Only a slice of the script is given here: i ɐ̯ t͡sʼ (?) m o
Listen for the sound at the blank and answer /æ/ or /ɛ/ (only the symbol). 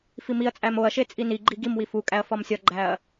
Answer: æ